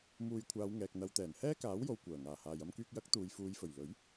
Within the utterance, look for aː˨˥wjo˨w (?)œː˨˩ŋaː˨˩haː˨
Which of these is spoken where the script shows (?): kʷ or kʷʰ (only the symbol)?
kʷ